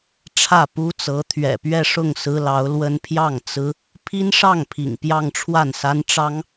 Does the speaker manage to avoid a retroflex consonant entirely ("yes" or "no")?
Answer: no